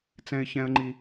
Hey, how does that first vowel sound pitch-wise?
high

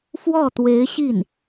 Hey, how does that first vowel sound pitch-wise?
falling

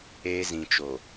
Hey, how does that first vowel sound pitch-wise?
high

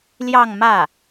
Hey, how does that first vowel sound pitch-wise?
falling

